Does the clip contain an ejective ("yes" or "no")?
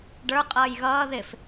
yes